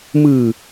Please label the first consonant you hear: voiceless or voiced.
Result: voiced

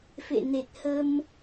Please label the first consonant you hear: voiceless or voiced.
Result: voiceless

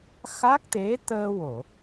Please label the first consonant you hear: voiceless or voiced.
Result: voiceless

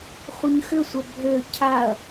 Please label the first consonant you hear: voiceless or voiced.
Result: voiceless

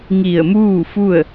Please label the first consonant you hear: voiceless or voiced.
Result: voiced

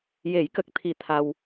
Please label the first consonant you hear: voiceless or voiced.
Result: voiced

